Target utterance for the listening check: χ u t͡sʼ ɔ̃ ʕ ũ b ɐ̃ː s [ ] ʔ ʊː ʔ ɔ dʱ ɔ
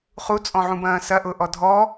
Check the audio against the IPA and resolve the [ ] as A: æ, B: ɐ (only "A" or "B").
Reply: B